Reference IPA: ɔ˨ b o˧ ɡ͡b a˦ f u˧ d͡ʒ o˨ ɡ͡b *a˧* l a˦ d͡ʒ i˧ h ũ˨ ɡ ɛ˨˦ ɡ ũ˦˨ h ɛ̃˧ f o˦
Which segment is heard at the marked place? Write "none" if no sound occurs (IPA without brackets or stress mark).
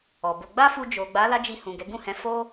a˨˦